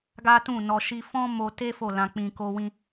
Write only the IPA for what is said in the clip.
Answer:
ɡ a˦ t ũ˦˨ n ɔ˧ ʃ i˧ f ɔ̃˦ m o˧ t e˦ f o˦˨ l ã˧ k͡p ĩ˧ k o˧ w ĩ˧

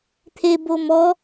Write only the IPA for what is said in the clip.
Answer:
t̪ʰ e b o m ɔ

